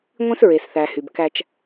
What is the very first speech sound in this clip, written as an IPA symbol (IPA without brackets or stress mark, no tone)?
ŋʷ